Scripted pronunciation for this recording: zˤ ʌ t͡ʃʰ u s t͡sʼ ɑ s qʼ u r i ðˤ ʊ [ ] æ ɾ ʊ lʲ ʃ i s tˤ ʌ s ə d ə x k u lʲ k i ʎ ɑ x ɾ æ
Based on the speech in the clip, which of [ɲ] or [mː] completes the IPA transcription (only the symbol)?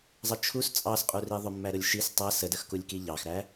mː